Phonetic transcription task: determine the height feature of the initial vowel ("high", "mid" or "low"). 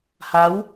low